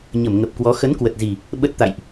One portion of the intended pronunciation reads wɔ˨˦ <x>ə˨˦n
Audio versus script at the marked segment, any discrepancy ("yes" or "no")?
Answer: no